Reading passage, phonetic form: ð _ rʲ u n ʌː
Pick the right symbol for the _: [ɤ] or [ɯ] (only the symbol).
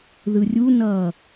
ɯ